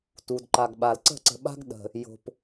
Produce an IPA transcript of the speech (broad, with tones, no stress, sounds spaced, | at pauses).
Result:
t u˨ d ǃ a˨ ɡ ɓ a˨ l ǀ ə̤˦˨ ǀ ə̤˨ ɓ a̤˦ ɡ ɗ ə̤˨ | j o̤˨ p